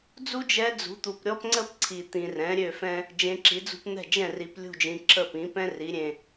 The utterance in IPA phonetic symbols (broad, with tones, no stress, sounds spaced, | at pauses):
d͡z u˥ d͡ʒ ɛ˧˥ d͡z ṳ˩˥ t̪ u˨ p ɾʲ ɔ˥ p ŋ͡ǀ ə˥ p ǀʰ i˨ t̪ ĩ˨ r ɛ̃˩˥ ɾʲ ø˥˩ f ɛ̃˥ | d͡ʒ ẽ˧˥ ǁ i˩˥ d͡z ṳ˥ p n̪ ɛ̤˥˩ d͡ʒ ɛ̃˥˩ r i˨ p lʲ ṳ˥˩ d͡ʒ ĩ˨ ǁʰ ə˥˩ p ĩ˩˥ p ɛ̃˥ r i˩˥ ɾʲ ẽ˨